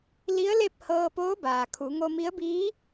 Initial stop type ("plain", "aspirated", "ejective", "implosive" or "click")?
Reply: plain